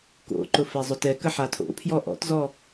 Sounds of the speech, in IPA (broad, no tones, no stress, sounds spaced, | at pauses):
k o̰ ǃ ʊ f ɛ zˤ ʊ t ɛ k ə ħ a tʰ o̰ pʰ j ɔ ʔ ɔ̰ t z ɔ